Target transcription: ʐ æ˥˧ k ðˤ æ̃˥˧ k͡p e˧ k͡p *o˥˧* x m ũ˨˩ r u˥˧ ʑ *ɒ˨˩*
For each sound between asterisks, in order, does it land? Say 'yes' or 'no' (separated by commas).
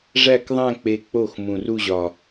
no, yes